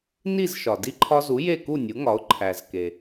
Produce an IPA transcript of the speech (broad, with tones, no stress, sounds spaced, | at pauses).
n i˥˩ z ʃ ɒ˩ d i˧ ǃʰ ɒ˧ z u˩˥ j e˥˩ k u˥˩ nʲ u˩˥ ŋ ɒ˩˥ ʊ̯ ǃʰ æ˩ z k e˩